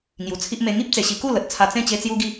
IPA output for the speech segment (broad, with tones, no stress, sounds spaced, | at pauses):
ŋ j u˨˩ t͡sʰ i˦ ʔ m e˧ ŋ i˦ p̚ t͡s e˨˩ ɕ i˧ k u˥˧ l ə˨ t̚ t͡sʰ a˧ t͡s ẽ˥˧ t͡ɕ e˦ t͡s j u˦ ɡ i˥˧